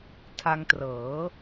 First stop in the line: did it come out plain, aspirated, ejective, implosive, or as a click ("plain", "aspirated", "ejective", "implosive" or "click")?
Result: aspirated